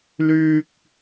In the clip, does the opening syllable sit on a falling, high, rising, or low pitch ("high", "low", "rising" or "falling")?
high